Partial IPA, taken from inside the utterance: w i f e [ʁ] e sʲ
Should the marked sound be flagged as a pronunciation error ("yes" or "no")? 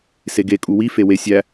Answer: yes